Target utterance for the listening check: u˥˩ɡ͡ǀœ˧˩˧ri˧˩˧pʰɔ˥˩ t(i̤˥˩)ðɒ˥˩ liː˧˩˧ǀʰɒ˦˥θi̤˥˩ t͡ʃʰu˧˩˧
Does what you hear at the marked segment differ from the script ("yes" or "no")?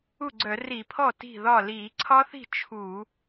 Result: no